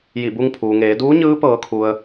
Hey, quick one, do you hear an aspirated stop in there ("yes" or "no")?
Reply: yes